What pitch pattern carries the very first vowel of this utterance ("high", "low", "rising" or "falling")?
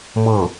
falling